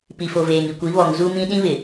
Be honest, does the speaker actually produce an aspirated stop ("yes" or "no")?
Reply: no